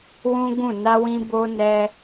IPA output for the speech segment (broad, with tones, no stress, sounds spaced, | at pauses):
w ũ˦ ɡ ũ˦˨ n a˧ w ĩ˧ b o˧ n ɛ˦